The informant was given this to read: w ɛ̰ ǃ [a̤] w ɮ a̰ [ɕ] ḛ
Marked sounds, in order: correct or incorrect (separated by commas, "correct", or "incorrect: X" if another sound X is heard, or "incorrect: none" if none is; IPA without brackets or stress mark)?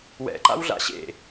incorrect: a̰, correct